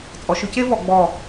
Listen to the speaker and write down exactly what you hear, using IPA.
t͡sʼ ɔ˩˧ ʃ ʏ˥ c e˥ v ɔ˩˧ ɡ͡b ɔ˧˩

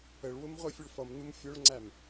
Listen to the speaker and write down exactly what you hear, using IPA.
ə ɭ w ʊ m ʁʷ ɛ fʲ ʊ ɭ f ʌ m n u m fʲ ʊ ɭ ŋ͡ǀ æ m

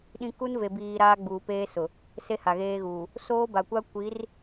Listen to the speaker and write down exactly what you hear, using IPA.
ɗ ĩ˦ k u˦ n v e˨ b iː˨ ɾ aː˦ ɡ͡b uː˨ p eː˦ s ʊ˨ | s e˦ h a˨ ɣ eː˦ ɣ uː˨ | s oː˦ b a˨ kʷ a˦ kʷ i˨˦ r

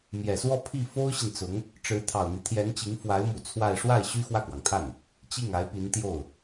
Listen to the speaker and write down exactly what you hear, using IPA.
m j ɛ˨˩ s w ɔ˥˧ pʰ i˥˩ f o˥ ʊ̯ ɕ i˨ n t͡s ʊ˧˥ ŋ | ʈ͡ʂ ɻ̩˧˥ t̪ʰ ɑ˨˩ ʊ̯ n̪ i˦ t̪ʰ j ɛ˧˥ n t͡ɕ i˧˥ ŋ f w a˧˥ ɪ̯ m u˨˩ t͡sʰ w a˥˧ ɪ̯ ʂ w a˥˩ ɪ̯ ɕ y˥ x w ä˥˩ k w ɑ˩ ŋ t̪ʰ a˥˩ n | t͡ɕ i˥˩ ŋ a˧˥ ɪ̯ p i˧˥ n t̪ j o˥˩ ʊ̯

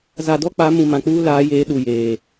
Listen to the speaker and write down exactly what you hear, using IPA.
z a˨ d ɔ˦ k͡p a˨˦ m ũ˨ m ã˨ k͡p uː˦ l aː˨˦ j eː˨˦ ɗ u˨ j eː˨

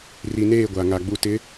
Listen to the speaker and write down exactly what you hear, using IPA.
r i˨ n eː˦˨ ɡʷ a˨ ŋ a˨ ɡ͡b u˨ t ɪ˨˦

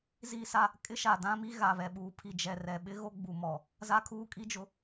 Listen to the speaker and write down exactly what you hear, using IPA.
z iː˦ s a˦ | kʼ ɪ˦ ʃ a˨ d ã˦ m i˦ ɣ a˨ β ɛ˨ ɓ uː˨ pʰ i˨ d͡ʒ ɛ˨ r ɛ˨ ɓ ɪ˦ ɣ o˦ ɡ͡b u˨ m ɔ˨ | z a˦ kʰ uː˦ kʼ i˦ d͡ʒ ʊ˨

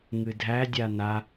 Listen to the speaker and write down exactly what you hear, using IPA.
ŋ ɨ dʱ æ dʲ a n a

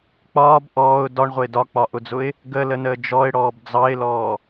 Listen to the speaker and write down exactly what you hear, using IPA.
k͡p ɒː b ʔ ɔː ʊ̯ d ɒ ɳ ʁʷ ə ɪ̯ d ɒ k͡p ɒ ʔ ʊ d͡z ʊ ɪ̯ | ɡ ə l ə n əː d͡ʒ ɔ ɪ̯ ɽ ɔː b d͡z ɑ ɪ̯ l ɔː

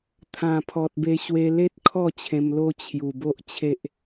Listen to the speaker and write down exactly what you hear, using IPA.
t̪ʰ ã˨˩ pʰ ɔ˨ t̚ b e˧ ɕ w e˧ l e˦ t̚ kʰ ɔ˥˧ t͡ɕʰ ẽ˧ m l o˦ t͡ɕʰ j u˨˩ b o˦ ʔ t͡ɕʰ e˦ ʔ

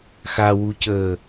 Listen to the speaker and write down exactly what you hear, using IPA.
x a w u c əː

